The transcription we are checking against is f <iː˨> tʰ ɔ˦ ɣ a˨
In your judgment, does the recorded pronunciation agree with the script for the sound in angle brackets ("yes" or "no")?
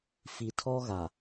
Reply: no